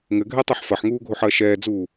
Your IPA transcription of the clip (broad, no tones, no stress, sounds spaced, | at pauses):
ŋ ɘ ɡʱ ɛ tˤ ɛ ħ f ɐ ħ ŋ uː ɡʱ o ħ ɐː ʃ ɛː d͡z uː